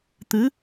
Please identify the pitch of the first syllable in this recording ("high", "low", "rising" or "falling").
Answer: rising